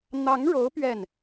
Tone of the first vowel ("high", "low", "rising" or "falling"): rising